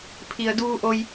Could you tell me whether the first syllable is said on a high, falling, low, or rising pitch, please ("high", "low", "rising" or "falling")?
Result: low